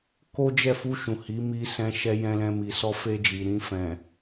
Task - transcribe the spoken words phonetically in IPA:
k o˦ d͡ʒ ɛ˦˨ f u˧ ʃ ũ˨ h i˨˦ m i˧ s ɛ̃˧ ʃ ɛ˧ j ɛ̃˧ l ɛ̃˧ m i˨ s ɔ˧ f e˧ d͡ʒ i˨ ɾ ĩ˧ f ɛ̃˨

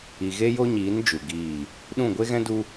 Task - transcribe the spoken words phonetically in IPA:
i˨ ɣ e˦ j o˦ ɲ iː˨˦ n d͡ʒ u˨ ɡ iː˦˨ | ɗ ũ˦˨ ɡʷ e˦ ɣ ɛ̃˦ d u˦

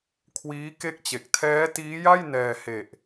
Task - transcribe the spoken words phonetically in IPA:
kʰ w iː˦˥ k e˥˩ k̚ t͡ɕ e˨˩ k̚ tʰ ɛː˦˥ t iː˦˥ j a˥˩ j n ɛː˧ h e˨˩ ʔ

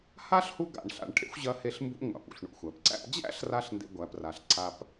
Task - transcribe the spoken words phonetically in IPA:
h a˥ ɬ h u˦ ɡ a̰˨ ɳ ɬ a̰˨ ɳ ʈʰ ḛ˥ xʷ ʑ ɐ˦ h e˦ ɬ m b ṵ˦ ŋʷ a̰˩ p ṵ˩ ɬ ɳ ṵ˨ xʷ æ˩ p ǀ æ̰˦ p d͡ʑ æ̰˥ ɬ r a˥ ɬ n d ḛ˦ ɡʷ æ˦ p r a˦ ɬ ǀ a˦ p

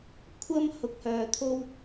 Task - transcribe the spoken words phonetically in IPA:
kʷʰ ɐ˥ m h ʊ˧ k̚ h œː˧ t̪ʰ o˥ w

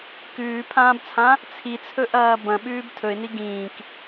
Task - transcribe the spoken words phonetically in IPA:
k ʉː pʰ ãː b t͡sʰ ã | t͡sʰ i t͡sʰ ɵ ʔ ɐː b ɐ̃ ɓ ʉː b tʰ ɵ ɪ̯ n i ɡ ĩː k

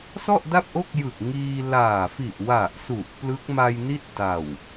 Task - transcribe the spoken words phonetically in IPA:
s ɔ˥˩ ʔ d a˥˩ p̚ ʔ o˥˩ k̚ j ɯ˨˩ k̚ ŋ iː˧ l aː˨˩ f i˨˩ ʔ w a˨˩ ʔ s u˨˩ ʔ p l ɯ˦˥ k̚ m a˧ j n i˥˩ t̚ d a˨˩ w

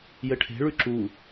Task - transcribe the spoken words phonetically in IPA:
j ɘ ʈʰ e̤ ɭ ʉ ǁ u

